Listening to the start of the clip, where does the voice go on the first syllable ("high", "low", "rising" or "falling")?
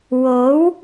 rising